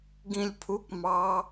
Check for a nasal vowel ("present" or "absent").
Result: present